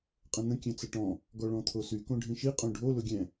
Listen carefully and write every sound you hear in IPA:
qʼə̃n̪ə̃ kʲɛ̃t͡səʈɔ̃ | ɡɔɭɔ̃t̪ʰosy kõɖʱĩʃi qʼõɖʱo lʊɡʲɛ̃

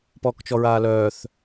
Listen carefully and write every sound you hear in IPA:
pɔːkt͡ʃɔɹaːlœːθ

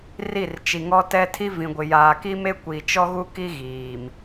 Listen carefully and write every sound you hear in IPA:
ri˦˨rt͡ʃi˨ŋɔ˦tɛ˦ tʰi˦ vĩ˨ɡʷɪ˨ jaː˨ki˦me˦ kʷi˨t͡ʃɔ˦ɣu˦ki˦ ɣiː˨m

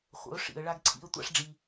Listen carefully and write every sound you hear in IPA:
χʷə̰˨˦ʊ̯ ʂḭ˨ə̯ ɭa˦ɡǀʰḭ˦ə̯ tʷa̰˦ʂɖ͡ʐi˧

